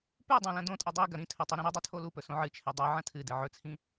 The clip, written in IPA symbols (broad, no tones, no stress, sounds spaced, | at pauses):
p ʉ dˤ õ l ɐ̃ d õ tʼ e dˤ i ɡ ɐ ɾ ĩ tʰ ɵ tˤ ʉ ɾ ĩ ɾ i dˤ ʉ tʰ o l u p ɵ s õ ʕ ɨ t͡ʃʰ e dˤ ɵ ʕ ɐ̃ tʰ ɨ d ɨ ʕ ɵ t͡sʰ ĩ